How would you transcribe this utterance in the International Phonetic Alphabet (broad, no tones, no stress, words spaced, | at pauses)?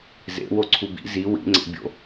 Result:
zḛ woǀʰubḭ zi wḭŋ͡ǀḛ bʲo̰